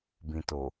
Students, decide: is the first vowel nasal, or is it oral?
nasal